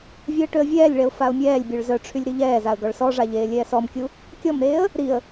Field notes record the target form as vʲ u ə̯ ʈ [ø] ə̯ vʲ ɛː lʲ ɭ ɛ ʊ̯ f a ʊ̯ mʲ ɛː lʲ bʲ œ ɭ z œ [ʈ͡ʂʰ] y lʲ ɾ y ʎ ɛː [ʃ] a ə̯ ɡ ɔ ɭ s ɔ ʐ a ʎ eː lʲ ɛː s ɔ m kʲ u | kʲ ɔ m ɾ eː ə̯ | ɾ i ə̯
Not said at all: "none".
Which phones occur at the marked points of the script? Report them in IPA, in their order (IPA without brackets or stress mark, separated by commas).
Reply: ø, ʈ͡ʂʰ, z